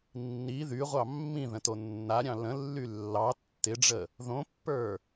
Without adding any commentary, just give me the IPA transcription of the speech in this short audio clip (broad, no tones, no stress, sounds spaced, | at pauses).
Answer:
nː i ð y ʁʷ ɑ mː ĩ ð ə̃ t o nː a ɾʲ ɑ̃ l ə̃ lː y lː ɑ tː ɪ ɖ͡ʐ ə | ð õ pː ə˞